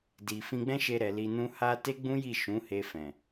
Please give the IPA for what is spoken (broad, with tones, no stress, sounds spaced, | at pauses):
d i˨ f ĩ˧ ɡ͡b ɛ̃˦ ʃ e˧ ɾ ɛ˨ l i˧ n ũ˦ h a˦ t e˦ ɡ͡b ũ˦ j i˦˨ ʃ ũ˨˦ h e˧ f ɛ̃˨